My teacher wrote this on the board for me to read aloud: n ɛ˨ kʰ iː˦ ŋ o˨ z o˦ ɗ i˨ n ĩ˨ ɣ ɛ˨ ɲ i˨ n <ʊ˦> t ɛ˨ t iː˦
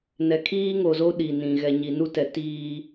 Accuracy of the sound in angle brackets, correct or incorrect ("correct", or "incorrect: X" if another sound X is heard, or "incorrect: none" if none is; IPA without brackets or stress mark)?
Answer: incorrect: u˦